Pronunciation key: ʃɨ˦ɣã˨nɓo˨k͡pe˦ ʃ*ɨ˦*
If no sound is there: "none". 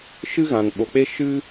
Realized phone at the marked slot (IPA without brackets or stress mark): ɨ˦